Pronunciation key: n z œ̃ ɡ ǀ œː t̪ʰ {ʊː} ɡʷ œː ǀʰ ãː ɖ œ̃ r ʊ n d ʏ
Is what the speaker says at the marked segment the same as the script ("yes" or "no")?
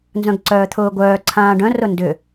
yes